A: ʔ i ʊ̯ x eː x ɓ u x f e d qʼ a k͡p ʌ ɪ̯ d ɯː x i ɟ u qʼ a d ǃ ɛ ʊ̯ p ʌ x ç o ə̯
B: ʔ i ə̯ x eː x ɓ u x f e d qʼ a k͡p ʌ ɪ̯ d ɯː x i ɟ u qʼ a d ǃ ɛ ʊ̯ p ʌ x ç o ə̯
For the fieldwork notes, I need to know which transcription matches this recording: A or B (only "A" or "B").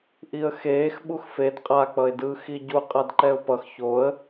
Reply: B